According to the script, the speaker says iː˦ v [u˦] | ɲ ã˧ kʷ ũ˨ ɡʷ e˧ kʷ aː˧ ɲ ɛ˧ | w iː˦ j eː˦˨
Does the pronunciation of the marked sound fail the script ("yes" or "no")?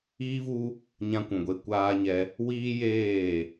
no